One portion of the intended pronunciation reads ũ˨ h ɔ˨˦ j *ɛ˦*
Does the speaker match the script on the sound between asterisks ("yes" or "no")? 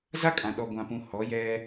yes